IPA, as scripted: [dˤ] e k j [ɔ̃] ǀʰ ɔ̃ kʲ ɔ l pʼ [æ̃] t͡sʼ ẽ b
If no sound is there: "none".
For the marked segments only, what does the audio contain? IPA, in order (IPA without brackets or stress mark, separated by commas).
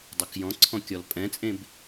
dˤ, ɔ̃, ɛ̃